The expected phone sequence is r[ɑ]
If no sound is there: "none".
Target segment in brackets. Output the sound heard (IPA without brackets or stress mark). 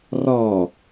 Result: ɔ